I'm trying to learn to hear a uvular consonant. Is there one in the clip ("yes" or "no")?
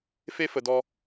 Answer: no